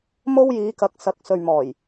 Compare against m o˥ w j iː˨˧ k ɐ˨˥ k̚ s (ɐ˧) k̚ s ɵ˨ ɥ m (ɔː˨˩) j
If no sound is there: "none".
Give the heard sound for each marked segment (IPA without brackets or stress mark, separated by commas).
ɐ˨˥, ɔː˨˩